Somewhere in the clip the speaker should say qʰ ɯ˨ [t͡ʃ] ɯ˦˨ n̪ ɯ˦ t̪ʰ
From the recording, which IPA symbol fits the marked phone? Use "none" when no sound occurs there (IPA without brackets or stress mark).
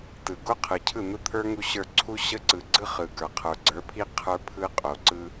cʰ